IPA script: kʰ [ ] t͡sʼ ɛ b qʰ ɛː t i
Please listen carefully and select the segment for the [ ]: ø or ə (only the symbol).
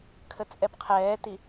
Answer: ə